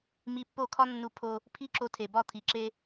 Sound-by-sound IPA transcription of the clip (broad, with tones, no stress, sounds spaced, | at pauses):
m i˧ pː o˥˩ kʰ ɒ˥ nː u˧ pʰ o˧ | pʰ i˥ ǁ o˧ tʰ e˩ b ɒ˥˩ t̪ʰ i˩ ǁ e˧